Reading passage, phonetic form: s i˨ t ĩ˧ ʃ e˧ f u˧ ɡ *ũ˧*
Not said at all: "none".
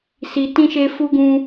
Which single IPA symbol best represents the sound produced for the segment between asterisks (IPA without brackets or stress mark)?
ũ˧